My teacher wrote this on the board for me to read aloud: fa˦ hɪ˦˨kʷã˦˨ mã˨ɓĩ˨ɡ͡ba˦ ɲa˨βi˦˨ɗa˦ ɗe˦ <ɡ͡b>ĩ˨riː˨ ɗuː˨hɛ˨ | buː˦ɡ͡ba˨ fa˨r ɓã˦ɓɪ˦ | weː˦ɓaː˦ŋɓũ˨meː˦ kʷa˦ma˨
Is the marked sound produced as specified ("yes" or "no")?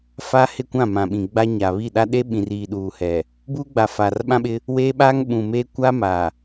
no